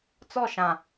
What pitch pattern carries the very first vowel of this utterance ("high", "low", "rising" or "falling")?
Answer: falling